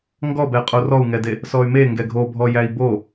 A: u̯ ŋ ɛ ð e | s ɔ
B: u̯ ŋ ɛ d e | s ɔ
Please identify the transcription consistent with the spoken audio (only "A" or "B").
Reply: B